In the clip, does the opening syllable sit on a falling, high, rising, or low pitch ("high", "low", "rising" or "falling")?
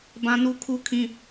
high